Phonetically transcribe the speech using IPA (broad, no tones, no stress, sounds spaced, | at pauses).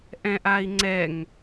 ʔ ɛ̃ ʔ a i̯ ŋ͡ǀ ɛ ŋ